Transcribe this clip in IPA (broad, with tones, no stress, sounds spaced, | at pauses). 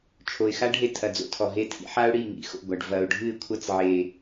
t͡ʃʰ o˨ ɪ̯ x a˦ ɖ ɦ e˧ tʰ ɐ˨ d͡z o̰˦ tʰ ɔ˨ ɦ e˧ tʰ ḭ˧ ħ a˦ ʊ̯ ɽ i˦˨ ŋ ḭ˧ x o̰˦˨ ɡʷ a˨ ɖ v ɐ˨ ʊ̯ ɖʱ ɨ˦˨ ɪ̯ kʷʰ ɐ˦ t͡s ʕ e˨